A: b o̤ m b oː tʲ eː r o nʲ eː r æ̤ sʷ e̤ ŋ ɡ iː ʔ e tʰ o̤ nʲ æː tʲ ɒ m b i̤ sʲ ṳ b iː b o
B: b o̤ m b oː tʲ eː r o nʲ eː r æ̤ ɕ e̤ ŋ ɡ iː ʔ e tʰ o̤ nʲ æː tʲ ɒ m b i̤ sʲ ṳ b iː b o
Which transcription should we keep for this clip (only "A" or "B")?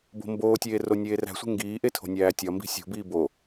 A